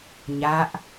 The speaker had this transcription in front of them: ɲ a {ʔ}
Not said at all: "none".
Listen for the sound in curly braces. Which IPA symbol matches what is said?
ʔ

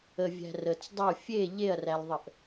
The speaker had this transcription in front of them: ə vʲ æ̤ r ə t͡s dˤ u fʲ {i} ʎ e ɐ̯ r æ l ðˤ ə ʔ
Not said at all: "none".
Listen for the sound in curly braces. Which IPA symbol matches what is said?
e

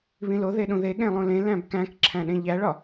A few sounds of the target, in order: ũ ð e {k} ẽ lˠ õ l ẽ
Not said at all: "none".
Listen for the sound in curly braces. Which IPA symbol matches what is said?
ɠ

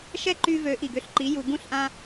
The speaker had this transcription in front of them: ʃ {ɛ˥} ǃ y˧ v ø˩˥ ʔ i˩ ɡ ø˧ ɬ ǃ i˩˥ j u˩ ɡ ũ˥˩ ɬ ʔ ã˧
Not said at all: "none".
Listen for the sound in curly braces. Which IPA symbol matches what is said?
ɛ˥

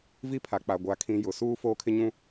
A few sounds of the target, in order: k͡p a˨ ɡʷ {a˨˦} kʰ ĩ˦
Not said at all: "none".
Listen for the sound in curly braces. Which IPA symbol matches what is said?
a˨˦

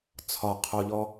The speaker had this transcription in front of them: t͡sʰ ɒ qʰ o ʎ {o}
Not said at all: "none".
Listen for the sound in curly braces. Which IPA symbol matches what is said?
ɔ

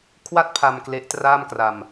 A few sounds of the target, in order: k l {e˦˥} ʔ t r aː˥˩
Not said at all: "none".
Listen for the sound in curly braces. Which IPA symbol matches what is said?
e˦˥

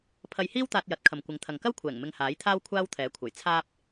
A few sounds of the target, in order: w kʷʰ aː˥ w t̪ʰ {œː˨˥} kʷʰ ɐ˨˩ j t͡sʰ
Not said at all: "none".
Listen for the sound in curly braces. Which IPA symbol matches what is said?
ɛː˨˥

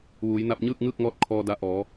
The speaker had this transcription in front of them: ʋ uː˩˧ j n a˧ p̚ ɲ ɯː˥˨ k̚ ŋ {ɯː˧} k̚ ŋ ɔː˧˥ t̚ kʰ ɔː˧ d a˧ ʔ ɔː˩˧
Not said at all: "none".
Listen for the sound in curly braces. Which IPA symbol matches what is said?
ɯː˥˨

